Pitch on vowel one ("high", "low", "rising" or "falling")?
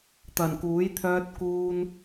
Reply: low